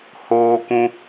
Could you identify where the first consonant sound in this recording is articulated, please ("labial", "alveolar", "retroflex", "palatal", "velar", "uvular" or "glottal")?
glottal